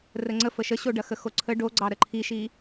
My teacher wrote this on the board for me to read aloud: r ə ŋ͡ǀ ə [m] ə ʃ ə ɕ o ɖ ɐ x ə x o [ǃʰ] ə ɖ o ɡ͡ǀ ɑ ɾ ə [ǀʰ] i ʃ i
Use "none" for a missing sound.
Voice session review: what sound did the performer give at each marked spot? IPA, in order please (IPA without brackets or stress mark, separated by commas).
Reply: f, ǀʰ, ǃʰ